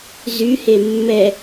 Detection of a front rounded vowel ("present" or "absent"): present